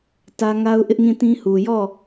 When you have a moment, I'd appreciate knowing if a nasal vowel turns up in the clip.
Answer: yes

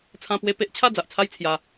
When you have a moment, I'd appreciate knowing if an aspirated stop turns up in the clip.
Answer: yes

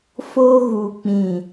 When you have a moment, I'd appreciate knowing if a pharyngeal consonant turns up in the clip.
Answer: no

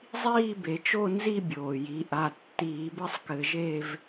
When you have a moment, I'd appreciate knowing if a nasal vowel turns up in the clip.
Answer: no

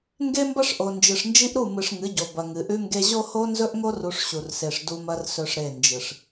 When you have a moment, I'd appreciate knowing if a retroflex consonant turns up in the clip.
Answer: yes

